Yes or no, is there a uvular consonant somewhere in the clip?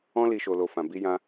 no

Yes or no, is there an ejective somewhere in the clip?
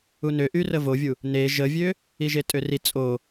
yes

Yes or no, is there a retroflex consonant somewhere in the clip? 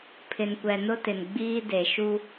no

